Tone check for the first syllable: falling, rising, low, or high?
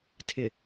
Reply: low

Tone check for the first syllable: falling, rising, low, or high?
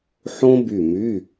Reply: high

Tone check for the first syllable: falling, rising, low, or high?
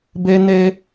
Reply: high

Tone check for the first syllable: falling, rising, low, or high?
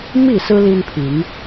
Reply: falling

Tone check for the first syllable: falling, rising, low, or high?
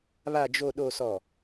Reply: low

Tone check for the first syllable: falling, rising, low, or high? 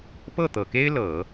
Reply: falling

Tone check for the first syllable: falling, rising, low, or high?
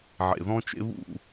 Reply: low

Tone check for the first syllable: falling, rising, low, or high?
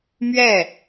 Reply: falling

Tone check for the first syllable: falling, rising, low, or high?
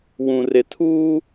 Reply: low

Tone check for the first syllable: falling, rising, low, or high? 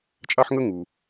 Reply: high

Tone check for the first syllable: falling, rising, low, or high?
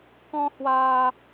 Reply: high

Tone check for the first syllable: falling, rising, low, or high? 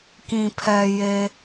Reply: low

